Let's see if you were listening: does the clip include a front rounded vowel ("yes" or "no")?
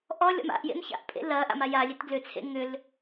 yes